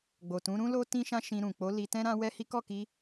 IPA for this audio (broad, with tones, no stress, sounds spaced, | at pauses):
ɡ͡b o˨ t ũ˨˦ ɾ ũ˦ l o˦ t ĩ˦ ʃ ã˦ ʃ ĩ˧ ɾ ũ˨ k͡p o˨˦ l i˧ t ɛ̃˦ ɾ ã˦ w ɛ˦ h i˦ k ɔ˦˨ k i˧